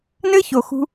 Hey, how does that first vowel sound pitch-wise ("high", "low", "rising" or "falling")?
high